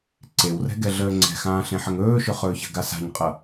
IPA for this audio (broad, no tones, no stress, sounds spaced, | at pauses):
ǀ e w r ɛ̤ ɡ ɛ ɮ əː ŋ͡ǀ ɛ̤ x ãː ɬ ẽ ħ ə ŋ ɵː ʃ ɵ χ ɵː ç ə̤ ɡ a s a̤ ɲ qʼ ɤ